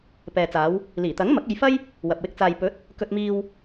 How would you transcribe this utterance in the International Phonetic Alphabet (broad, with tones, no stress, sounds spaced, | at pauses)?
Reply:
p ɛː˨ t͡s aː˨˧ w | l iː˨˩ t̪ ɐ˨˥ ŋ m ɐ˨˥ k̚ e˧ j f ɐ˥ j | w ɐ˨ p̚ w ɪ˧ k̚ t͡s aː˨ j p ɵ˨˥ t̚ | k ɵ˧ t̚ m iː˧ w